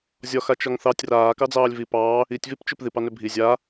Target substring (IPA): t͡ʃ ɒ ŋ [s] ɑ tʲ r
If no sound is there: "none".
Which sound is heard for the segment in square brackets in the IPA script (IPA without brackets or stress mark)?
θ